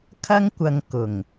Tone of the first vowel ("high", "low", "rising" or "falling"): high